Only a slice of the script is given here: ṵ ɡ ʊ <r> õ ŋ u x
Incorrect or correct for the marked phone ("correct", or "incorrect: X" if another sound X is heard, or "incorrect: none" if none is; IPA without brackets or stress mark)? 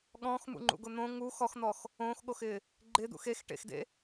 incorrect: n̪